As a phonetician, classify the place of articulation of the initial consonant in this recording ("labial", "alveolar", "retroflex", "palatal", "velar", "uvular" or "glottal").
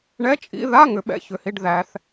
retroflex